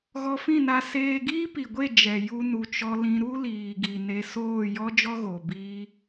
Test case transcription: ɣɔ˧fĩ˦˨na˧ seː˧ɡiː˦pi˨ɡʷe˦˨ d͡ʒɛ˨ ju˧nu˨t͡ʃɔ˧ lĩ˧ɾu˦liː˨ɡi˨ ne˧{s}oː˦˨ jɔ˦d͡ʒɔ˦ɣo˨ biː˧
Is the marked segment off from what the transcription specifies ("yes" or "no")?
no